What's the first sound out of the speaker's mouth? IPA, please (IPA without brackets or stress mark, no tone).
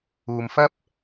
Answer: uː